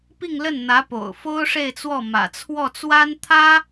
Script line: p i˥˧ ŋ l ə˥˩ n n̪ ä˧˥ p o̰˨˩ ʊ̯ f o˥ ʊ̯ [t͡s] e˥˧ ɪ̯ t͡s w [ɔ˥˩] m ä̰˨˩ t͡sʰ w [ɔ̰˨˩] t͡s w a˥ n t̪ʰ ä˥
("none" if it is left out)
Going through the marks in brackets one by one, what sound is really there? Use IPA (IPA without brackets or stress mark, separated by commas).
ʂ, ɔ˥˩, ɔ˥˩